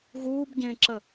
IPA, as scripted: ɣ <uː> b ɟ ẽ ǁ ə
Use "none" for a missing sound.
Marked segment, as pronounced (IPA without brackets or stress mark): uː